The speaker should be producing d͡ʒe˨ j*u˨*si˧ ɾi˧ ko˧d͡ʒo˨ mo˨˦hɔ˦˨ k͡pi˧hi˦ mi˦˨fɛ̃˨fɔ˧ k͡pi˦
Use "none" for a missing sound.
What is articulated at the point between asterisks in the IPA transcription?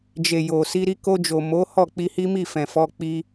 o˨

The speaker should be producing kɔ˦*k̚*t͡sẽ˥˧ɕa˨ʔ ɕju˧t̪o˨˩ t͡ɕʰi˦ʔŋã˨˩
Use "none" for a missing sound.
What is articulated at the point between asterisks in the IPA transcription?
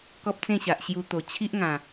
p̚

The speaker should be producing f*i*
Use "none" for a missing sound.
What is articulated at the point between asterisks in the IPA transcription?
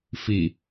i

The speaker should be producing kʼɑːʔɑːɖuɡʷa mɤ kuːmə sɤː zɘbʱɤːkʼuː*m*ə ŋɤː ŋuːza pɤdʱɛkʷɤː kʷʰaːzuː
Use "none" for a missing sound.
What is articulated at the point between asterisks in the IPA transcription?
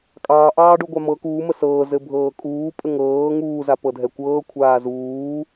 pʼ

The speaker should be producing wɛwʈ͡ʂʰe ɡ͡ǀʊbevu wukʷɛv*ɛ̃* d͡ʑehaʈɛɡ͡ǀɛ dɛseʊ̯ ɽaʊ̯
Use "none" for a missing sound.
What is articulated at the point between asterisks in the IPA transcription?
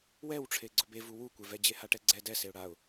ɛ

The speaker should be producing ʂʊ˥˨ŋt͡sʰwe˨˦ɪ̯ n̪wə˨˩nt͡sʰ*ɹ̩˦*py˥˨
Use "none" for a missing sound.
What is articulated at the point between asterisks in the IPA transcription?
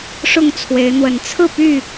ɹ̩˥˨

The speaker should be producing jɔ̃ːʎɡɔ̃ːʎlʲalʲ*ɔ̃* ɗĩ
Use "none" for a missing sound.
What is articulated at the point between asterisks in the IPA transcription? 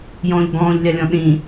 ɔ̃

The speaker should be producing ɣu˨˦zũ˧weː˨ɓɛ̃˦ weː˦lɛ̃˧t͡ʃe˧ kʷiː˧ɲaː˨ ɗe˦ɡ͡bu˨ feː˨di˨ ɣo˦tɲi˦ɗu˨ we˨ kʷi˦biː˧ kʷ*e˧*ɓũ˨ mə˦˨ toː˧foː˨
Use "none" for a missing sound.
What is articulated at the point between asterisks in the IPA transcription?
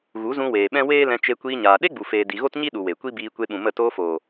e˧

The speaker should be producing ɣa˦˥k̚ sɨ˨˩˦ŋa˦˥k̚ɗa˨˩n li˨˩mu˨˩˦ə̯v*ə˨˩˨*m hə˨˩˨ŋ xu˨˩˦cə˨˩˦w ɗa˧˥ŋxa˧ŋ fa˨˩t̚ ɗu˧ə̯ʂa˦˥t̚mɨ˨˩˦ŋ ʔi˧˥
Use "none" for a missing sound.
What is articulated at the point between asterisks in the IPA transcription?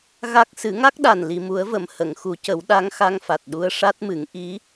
ə˨˩˨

